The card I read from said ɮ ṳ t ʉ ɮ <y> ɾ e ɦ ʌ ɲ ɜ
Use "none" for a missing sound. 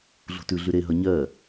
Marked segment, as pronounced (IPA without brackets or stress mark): y